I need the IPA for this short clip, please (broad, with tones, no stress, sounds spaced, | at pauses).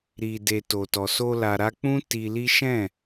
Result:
ɾ i˨ d e˨ t o˨ t ɔ˨ s o˧ l a˨ ɾ a˧ k͡p ũ˦ t i˧ l i˦ ʃ ɛ̃˦˨